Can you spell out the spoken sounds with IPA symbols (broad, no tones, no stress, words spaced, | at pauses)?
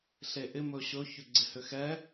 ɬeʔɪ mɵɕɵ çʏɡ͡ǀɪhʏxɛ